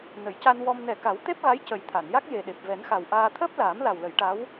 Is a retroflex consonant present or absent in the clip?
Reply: present